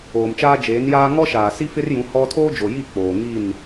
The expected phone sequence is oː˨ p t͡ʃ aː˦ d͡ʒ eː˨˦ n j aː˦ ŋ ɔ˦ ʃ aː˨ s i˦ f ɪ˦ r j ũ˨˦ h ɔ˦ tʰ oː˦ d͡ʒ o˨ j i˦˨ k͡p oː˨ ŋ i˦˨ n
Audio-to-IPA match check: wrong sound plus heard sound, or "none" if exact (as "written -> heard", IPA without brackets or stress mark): p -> m